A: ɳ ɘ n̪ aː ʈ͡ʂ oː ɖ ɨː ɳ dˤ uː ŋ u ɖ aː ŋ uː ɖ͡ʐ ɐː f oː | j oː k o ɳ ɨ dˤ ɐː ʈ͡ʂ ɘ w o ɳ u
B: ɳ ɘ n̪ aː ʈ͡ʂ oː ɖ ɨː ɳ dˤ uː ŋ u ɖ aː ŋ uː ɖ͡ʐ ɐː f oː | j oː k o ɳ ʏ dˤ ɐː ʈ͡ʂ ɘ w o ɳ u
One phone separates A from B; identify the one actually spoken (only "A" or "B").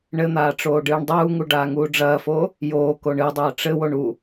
A